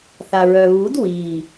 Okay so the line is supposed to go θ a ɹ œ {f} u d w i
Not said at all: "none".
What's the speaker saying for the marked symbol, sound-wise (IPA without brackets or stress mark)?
β